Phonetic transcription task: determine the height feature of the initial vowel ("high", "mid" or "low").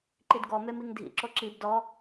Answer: high